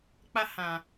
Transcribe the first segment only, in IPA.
k͡p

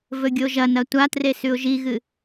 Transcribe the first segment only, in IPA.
v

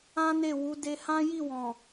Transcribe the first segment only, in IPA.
ã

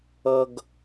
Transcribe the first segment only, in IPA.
ʌ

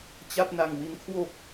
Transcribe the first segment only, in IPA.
t͡ɕ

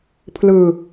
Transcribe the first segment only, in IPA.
pʰ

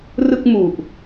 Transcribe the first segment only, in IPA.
r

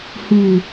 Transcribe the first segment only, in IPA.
h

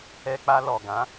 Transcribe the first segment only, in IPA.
ɛ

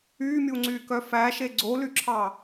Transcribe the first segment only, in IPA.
yː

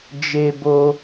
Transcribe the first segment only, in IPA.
d͡ʒ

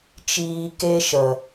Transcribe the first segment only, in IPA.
t͡ʃ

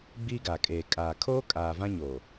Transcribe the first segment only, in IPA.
ɡ͡b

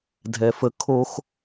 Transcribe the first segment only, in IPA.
dʱ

